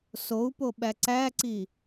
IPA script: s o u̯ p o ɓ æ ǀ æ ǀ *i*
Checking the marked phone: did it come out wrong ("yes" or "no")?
no